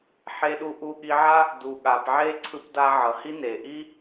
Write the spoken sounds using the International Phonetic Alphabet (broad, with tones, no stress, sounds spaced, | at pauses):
ħ e˧ ɗ u˧ ʔ u˧ ɠ i˧ ʕ a˥ | d u˩ ɠ a˩ p ʕ e˥ ǀʰ ɯ˧ p d a˧ ʕ ʌ˩ h i˥ n e˩ ʔ i˥